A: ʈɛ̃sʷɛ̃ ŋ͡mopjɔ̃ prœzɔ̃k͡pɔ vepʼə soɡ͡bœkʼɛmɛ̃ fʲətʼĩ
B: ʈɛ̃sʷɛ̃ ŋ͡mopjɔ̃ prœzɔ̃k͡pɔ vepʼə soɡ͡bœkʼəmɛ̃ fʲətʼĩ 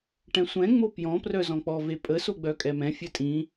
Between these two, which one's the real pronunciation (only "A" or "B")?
A